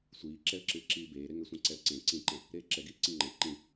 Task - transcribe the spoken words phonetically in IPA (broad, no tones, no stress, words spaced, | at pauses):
sʷiːǁɛə̯ǁɨː ǁiːbeːɾe ŋɛsʷɛ̃ǀɛə̯ǀẽ ǀĩǃɛ̃ | ɾeːǁɛɡiː ǀĩŋ͡ǃɛ̃ ǃĩ